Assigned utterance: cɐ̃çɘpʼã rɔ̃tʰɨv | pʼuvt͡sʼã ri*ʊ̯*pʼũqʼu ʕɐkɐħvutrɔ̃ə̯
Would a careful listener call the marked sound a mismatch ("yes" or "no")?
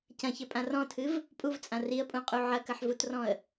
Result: yes